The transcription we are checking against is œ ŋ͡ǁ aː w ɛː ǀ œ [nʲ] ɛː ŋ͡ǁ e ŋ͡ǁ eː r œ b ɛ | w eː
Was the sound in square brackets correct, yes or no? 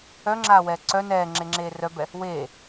no